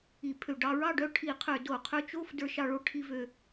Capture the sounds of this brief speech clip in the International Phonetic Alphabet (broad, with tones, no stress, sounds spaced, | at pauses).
i˧˩˧ pʰ ø˧˩˧ ɖ ɑ˧ ɹ ɑ˥˨ ɖ œ˥˨ ʈʰ i˧˩˧ qʰ ø˧˩˧ d o˧˩˧ qʰ ø˥˨ t͡ʃ o˥˨ f d ə˞˧ ʃ ɑ˧ ɭ o˧ ʈʰ i˧ v ø˧